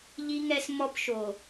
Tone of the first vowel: high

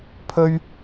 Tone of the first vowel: high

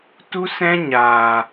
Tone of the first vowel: high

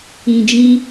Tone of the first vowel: low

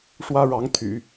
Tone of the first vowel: high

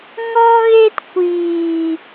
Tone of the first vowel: high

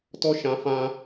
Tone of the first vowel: high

